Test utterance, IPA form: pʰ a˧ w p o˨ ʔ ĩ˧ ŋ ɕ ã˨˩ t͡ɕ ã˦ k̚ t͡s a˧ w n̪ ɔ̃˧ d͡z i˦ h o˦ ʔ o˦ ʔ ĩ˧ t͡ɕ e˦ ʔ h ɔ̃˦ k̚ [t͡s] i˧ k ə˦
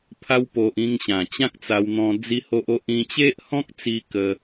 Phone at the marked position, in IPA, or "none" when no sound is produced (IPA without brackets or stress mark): t͡s